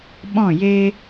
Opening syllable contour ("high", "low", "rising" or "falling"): falling